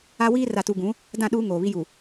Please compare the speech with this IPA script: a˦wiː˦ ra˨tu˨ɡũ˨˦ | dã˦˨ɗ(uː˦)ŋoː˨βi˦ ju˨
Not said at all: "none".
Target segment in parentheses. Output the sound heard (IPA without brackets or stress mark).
uː˦